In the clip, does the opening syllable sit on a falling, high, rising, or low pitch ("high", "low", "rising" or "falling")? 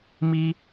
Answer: high